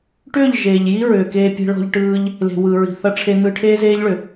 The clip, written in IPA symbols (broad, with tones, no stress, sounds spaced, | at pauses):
ʈ ʏː˦˨ ʎ ʒ eː˨ ʎ j i˦ ɹ ʏː˨ k eː˧ pʲ e̤˧ ɭ ɔ̤˧ ʎ ʈ ɯː˧ ʎ | l e̤˨ w ɯ˨ ɹ i̤˨ θ ʌ˧ ʈ͡ʂʰ e˧ n̪ ɯ˧ ʈʰ eː˦ z eː˦ ʎ ɭ ʏ˨